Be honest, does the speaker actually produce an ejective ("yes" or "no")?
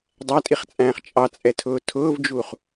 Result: yes